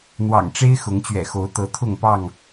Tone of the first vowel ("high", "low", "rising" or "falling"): low